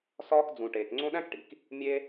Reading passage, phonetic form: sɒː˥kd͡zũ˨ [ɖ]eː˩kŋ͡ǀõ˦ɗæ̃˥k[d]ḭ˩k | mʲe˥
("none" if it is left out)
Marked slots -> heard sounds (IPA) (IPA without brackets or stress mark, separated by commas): ʈ, ʈ